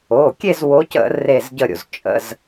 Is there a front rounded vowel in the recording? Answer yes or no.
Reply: no